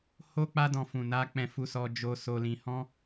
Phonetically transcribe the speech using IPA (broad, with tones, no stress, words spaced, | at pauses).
ho˦ k͡pa˦dɔ̃˧fũ˨na˧ k͡pɛ̃˨ fu˧sɔ˧ d͡ʒo˧so˧lĩ˧ hɔ̃˦